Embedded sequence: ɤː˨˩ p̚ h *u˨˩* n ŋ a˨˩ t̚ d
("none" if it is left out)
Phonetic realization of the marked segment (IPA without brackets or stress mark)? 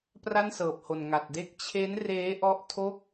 o˨˩